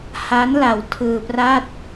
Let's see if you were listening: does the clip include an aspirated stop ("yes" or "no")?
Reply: yes